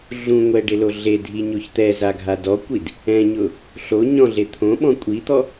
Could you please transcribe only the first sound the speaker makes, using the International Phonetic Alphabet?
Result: ɮ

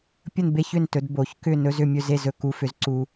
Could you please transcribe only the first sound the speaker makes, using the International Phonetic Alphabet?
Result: pʲ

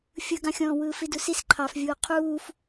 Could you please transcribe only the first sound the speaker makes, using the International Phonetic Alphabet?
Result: fʲ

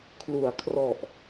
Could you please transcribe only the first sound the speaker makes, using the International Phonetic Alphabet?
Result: kʰ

